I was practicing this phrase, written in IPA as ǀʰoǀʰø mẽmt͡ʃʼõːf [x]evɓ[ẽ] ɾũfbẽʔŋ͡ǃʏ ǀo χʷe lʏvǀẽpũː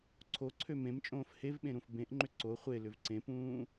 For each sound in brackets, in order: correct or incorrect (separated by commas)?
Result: incorrect, correct